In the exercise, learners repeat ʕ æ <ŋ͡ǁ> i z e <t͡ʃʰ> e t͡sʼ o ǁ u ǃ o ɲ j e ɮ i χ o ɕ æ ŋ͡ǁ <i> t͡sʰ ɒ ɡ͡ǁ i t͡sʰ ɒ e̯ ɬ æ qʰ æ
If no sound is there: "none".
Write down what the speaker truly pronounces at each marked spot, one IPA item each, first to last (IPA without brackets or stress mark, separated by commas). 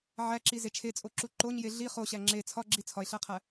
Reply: ǁ, t͡ʃʰ, e